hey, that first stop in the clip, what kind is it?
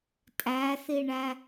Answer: ejective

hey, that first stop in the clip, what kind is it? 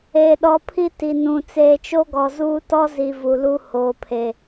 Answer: implosive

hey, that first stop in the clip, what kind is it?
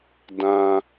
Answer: plain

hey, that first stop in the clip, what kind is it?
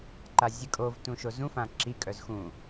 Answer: click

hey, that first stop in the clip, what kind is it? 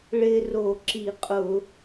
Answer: click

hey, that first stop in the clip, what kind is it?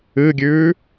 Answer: plain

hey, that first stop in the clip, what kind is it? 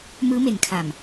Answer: aspirated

